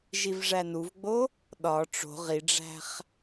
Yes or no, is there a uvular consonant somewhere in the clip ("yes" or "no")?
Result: yes